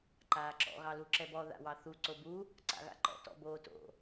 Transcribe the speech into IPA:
ǃaːǁɔ̰ ɣɑluǁɛbɔ ða̰wɑθu ǀobu | ǀa̰ɣa̰ǃɔ̰ tɔ̰boːto̰

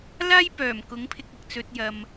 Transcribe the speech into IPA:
laː˥jpœː˨˩mkʊ˨˥ŋ pʰɪ˧k̚ɐ˨k̚t͡sɵ˧t̚ jɐ˨m

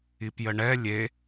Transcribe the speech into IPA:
ipjəɳɛ lʲe

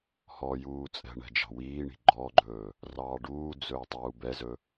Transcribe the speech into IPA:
hɔjuː t͡sʼɛ̤ɳɛ̤ d͡ʒɑ̤wiːɳi̤ ɡ͡ǃɔɡ͡ǃɵː | rɑːɖuːd͡zɵː tˤuːbɛzɵ

